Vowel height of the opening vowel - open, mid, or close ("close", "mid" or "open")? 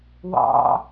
open